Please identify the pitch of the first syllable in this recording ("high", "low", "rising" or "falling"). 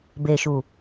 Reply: low